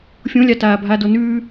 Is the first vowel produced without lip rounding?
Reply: no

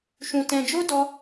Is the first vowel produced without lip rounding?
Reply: no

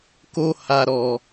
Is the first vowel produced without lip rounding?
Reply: no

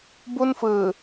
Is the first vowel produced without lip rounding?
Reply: no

